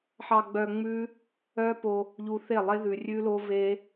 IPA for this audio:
ħ ɑ˧ ɡ͡b œ˧ ŋ͡m ʉ˦ | œ˦ p o˧ | ʎ u˧ θ e˦˨ lˠ e˦ ð ʉ˧ rʲ ʉ˦ l o˦ v e˦

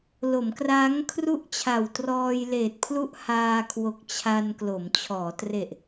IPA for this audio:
l o˩˦ m k r aː˦˥ ŋ kʰ r u˥˩ ʔ t͡ɕʰ a˨˩ w t r ɔː˧ j l eː˨˩ t̚ pʰ l u˥˩ ʔ h aː˧ kʰ w o˨˩ k̚ t͡ɕʰ a˧ n k l o˩˦ m t͡ɕʰ ɔː˩˦ t r e˨˩ ʔ

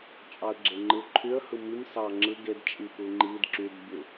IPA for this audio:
t͡ʃʼ ɑ ə̯ ɡ͡ǁ e ŋ͡ǃ ɯ ǃʰ y ə̯ h ɯ m i m s ɑ ŋ͡ǁ ɯ ɡ e d t͡ʃʼ i p ɯ ŋ͡ǃ i d ǁ y d bʲ u

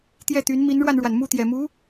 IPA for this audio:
t̪ j ɛ˥˩ t̪ y˧˥ n m i˧˥ n ɻ w a˧ n ɻ w a˩ n m u˥˩ t̪ j ɛ˨˩ m u˧˥

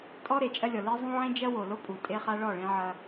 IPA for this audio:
tʼ ɔ˦ ɾ e˨ t͡ʃʼ ɐ˦ lʲ ɔ˨ l e˦ zˤ ũ˦ ʕ ẽ˦ d͡ʒ ɐ˦ w o˨ l o˦ pʼ u˨ tʼ e˦ χ a˦ ɭ ɔ˦˨ ɭ ẽ˦ ʕ ɐ˦

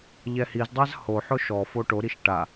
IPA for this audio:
ʎ ɛ h i z dˤ a z h o ħ ʊ ʃ ɔ f o ʈ o ɾ i ʃ ʈ a

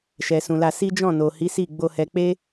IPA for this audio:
ʃ ɛ˨ s ũ˨ l a˧ s i˦ d͡ʒ ɔ̃˦˨ n o˨ h i˨˦ s i˦˨ ɡ͡b o˧ h ɛ˧ k͡p e˦

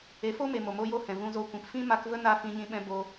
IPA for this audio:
e˨˦ f o˦ m e˨ m o˨ m o˧ j o˦˨ h ɛ̃˨ v ũ˧ z o˧ kʷ ĩ˨ p f ĩ˦ m a˧ k v ə˦ n a˧ f ĩ˧ ɲ ĩ˧ ɓ ɛ̃˧ b o˧

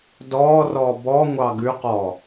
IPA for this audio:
d ɔː r ɔː b ɔ ŋʷ ɑ ɡ ʉ q ɔ

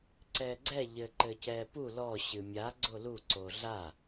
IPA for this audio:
ǀ ɛː ɡ͡ǀ ɛ ʎ ɘ ǃ ɘ c ɛː p u l ɔ ɕ ɨ mʲ a ɡ͡ǀ o l u ǀ o ɮ a

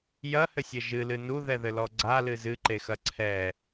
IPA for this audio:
j ɐ h ɘ sʲ ɘ ʒ ɨ l ɨ n u ð ɛ ð ɘ l ɔ ɡ͡ǀ a l ɨ z ɨ ǃ e x ɐ ǀʰ ɛ

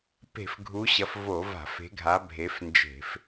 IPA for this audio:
p e̤˧˩˧ f ɡʱ u˨˦ ɕ ɐ˨˦ f v o˧˩˧ v a̤˧˩˧ f e̤˨˦ ɡʱ a˨˦ bʱ e˨˦ f n d͡ʒ e̤˧˩˧ f

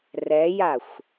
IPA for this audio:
r ɛ j a xʷ

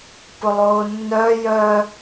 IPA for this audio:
p ʊ lˠ ʊː nː œ j œ

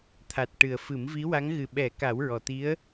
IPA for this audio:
t̪ʰ a˨˩ t̚ ʈ ɨ˨˩ ə̯ f ɨ˨˩˦ m v i˧˥ w a˧˥ ŋ ɣ ɨ˨˩ ɓ ɛ˨˩˦ k a˨˩˦ w ɹ ɔ˨˩ t̪ i˧˥ ə̯

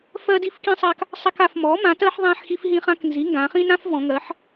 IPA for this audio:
f ɜ˦ d i˦ f k ĩ˦ sˤ a˦ k | sˤ a˦ k a˩˧ f m ɔ˩˥ m ã˩˥ t ɜ˦ ħ ðˤ ã˦ ħ x i˦ f ɦ ĩ˦ χ ã˦ k n z i˩˥ ŋ ɡ ã˩˧ χ ĩ˦ n ã˦ f v ɔ̃˩˧ ŋ ɜ˩˥ ħ

